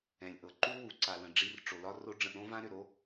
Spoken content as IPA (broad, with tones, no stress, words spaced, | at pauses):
ɛ̃˩lʲʔɤ˩ ǃu˥ wu˩ǀa˩lə̃˩ ɖ͡ʐi˧rʈ͡ʂo˩lɒ˥ro˥ ɖ͡ʐə̃˧ʔɾõ˥vã˥ ɾʏ˩ɾo˥